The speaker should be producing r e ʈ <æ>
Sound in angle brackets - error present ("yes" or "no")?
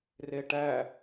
no